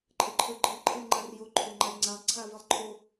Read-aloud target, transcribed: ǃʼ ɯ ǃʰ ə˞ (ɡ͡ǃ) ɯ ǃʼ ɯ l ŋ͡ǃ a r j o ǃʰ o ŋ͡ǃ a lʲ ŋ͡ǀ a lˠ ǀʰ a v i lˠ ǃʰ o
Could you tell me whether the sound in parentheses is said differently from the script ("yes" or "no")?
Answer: no